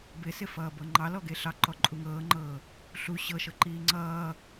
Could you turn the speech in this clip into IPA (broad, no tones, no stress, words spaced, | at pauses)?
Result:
bɪsɪfʌːbɤ ŋ͡ǃɑlɔɡe ɬɑǃɔ ǃʼuŋɤːŋ͡ǃɤː | ɬu ɕɤʃɤ ǃiːŋ͡ǀʌː